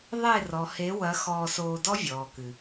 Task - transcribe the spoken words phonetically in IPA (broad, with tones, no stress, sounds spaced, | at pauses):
ðˤ e˦˨ r ɔ˨ h e˨˦ w ɐ˨˦ x ɔː˧ s oː˧ d ɔ˦ vʲ ɔː˨ k ɨ˨